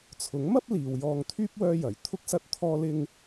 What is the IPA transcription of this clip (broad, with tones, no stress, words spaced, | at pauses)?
t͡sʰʊ˨˥ŋmɐ˥p̚ liː˨wjɔː˧ŋt̪ʰyː˥p̚ wœː˥jɐ˨˩j t̪ʰʊ˥k̚sɐ˥t̚ t̪ʰɔː˥lɪ˥ŋ